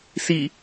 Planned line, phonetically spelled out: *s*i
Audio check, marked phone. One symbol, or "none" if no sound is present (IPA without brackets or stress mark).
s